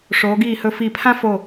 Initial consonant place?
retroflex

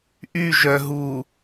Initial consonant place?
glottal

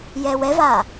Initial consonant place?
palatal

